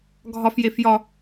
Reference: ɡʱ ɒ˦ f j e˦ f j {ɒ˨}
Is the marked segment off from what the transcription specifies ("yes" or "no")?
yes